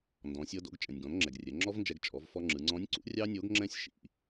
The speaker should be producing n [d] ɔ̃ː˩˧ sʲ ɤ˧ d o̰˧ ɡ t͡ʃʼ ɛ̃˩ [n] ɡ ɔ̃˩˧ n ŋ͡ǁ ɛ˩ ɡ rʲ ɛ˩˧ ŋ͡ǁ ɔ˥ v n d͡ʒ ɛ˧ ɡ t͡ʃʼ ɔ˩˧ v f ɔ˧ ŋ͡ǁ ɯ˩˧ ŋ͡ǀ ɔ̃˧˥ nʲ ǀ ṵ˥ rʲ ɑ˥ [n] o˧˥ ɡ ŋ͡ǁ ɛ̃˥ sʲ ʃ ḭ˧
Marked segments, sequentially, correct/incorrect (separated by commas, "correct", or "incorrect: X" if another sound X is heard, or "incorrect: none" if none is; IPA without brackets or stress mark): correct, incorrect: nʲ, incorrect: nʲ